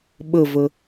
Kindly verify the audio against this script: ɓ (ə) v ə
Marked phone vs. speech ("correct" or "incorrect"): correct